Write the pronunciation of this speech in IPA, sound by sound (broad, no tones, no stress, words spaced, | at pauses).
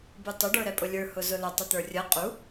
butˤʊ ɖə˞ɾɛpʼʊlʲə˞ hʊzʊlə tˤit̪ə˞rʲə qʼu